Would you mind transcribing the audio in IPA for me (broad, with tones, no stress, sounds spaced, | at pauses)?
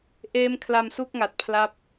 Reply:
ʔ eː˦˥ m kʰ l a˧ m s u˥˩ k̚ ŋ a˨˩ t̚ pʰ l a˦˥ p̚